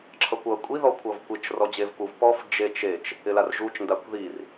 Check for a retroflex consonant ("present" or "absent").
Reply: absent